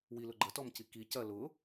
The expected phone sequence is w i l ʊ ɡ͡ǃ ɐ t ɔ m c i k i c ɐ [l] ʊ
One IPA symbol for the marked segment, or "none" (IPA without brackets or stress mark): l